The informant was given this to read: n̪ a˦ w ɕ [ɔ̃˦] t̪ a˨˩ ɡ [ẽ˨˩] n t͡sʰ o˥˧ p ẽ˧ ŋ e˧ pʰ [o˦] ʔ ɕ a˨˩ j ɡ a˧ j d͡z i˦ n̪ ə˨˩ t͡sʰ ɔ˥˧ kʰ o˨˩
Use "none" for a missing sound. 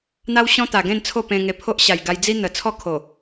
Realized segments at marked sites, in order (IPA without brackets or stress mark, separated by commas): ɔ̃˦, ẽ˥˧, o˦